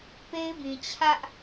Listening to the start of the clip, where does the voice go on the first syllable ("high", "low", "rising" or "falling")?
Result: high